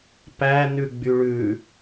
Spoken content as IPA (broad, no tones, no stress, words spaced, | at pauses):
pænʉ ɡ͡byɭʉ